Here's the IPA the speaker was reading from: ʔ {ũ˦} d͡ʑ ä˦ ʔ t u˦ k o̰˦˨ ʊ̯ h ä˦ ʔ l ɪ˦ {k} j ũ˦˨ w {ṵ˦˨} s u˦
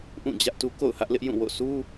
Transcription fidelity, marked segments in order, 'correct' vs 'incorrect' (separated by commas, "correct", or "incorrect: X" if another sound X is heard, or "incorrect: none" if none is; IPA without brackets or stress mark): incorrect: ũ˦˨, incorrect: ʔ, incorrect: o̰˦˨